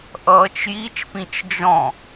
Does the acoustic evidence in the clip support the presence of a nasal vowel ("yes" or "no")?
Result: yes